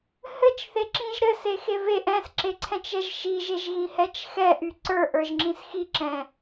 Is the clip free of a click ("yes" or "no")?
no